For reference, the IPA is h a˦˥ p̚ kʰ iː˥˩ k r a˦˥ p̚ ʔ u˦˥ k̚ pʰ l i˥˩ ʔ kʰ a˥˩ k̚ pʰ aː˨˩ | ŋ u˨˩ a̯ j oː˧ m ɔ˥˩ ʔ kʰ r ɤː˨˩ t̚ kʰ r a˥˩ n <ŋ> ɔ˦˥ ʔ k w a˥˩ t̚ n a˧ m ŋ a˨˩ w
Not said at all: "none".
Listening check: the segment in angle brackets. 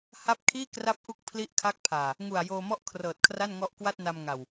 ŋ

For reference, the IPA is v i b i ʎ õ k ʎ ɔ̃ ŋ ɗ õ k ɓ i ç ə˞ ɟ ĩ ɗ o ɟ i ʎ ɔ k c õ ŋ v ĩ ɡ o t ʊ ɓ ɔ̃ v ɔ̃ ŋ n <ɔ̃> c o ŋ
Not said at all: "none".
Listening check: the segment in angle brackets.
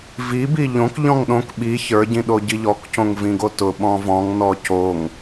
ɔ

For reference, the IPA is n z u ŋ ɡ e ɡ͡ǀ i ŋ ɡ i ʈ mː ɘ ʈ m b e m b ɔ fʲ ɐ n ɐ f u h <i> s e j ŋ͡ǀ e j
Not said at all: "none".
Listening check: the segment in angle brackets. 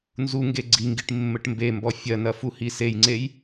i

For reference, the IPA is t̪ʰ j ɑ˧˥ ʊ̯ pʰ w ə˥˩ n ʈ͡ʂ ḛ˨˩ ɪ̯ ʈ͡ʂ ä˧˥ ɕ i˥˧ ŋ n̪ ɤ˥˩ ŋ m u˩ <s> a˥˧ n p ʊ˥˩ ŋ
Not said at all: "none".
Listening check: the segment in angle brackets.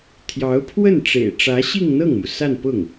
s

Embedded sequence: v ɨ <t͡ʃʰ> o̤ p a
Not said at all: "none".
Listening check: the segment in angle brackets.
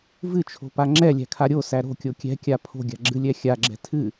t͡ʃʰ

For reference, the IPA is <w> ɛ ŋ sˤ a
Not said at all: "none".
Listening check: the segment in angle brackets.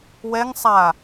w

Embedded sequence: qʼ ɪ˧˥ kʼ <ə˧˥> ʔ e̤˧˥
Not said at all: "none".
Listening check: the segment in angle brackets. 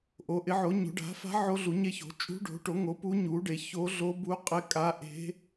a˧˥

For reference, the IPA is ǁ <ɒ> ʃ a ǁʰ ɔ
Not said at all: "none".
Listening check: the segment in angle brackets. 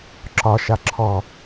ɒ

